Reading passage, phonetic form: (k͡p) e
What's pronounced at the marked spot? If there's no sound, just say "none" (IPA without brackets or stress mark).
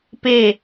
p